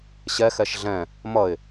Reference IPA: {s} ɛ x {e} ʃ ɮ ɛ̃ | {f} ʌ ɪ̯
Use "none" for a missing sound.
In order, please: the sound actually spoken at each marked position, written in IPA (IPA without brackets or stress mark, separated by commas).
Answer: ɕ, ɛ, m